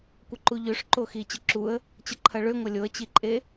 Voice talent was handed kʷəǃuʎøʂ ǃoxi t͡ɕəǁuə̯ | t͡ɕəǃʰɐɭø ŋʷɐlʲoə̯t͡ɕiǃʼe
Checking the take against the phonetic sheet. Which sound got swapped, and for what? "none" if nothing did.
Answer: none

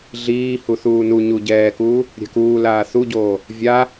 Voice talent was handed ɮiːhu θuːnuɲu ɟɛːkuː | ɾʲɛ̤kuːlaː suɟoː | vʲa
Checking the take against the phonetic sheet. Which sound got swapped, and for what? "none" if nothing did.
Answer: s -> θ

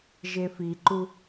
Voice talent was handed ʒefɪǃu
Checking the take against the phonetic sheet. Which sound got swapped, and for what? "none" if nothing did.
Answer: ɪ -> i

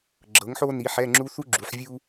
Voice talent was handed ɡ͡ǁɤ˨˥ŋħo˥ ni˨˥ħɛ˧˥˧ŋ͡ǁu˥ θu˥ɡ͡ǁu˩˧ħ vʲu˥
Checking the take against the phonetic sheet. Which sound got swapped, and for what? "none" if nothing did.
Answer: none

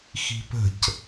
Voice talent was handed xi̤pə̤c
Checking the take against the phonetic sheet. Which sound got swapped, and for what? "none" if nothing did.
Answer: none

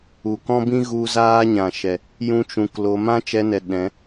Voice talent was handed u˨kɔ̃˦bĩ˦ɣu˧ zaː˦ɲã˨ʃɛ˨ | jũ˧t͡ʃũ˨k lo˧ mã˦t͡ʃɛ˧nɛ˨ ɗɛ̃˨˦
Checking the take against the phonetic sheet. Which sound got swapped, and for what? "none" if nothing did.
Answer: none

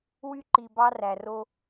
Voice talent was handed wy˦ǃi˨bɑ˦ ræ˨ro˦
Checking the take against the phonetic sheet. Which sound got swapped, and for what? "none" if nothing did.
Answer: none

